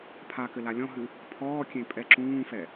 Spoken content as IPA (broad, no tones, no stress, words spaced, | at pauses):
pʰakɘ lalʲɔ̃ɦɨ | pʰɔːkʲẽ pʼɛǁũːfɛ